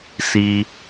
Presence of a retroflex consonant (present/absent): absent